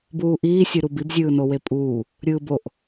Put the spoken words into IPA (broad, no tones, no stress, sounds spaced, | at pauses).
b uː ʔ iː sʲ ɯ ɾ u b i b zʲ ɯː n o w e pʼ uː | ɾʲ ɯː b o ʔ